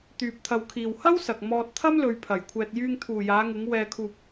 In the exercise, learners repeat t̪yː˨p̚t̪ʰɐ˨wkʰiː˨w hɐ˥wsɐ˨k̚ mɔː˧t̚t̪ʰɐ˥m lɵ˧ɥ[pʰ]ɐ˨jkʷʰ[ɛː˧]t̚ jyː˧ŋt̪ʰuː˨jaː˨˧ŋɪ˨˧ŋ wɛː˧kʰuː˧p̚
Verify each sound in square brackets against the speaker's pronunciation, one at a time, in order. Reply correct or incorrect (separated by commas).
correct, correct